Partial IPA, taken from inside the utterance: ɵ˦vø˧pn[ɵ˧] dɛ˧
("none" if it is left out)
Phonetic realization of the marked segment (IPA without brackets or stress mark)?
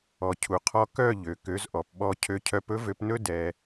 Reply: ɵ˦